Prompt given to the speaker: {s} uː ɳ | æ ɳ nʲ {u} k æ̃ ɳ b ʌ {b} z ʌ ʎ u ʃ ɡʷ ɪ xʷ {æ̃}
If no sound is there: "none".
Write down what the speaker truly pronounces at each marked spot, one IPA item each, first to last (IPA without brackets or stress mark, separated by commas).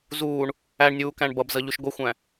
z, uː, b, æ̃